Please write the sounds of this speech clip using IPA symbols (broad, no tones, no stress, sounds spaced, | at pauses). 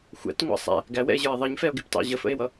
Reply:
xʷ æ̰ t ŋʷ ɑ̰ sˤ æ̰ | ɡ æ w ɛ̰ e̯ ʑ ə˞ e̯ ðˤ ə ɲ f ɛ o̯ ɡ ɪ p t ɑ̰ ʑ ə f ə̰ e̯ w ʌ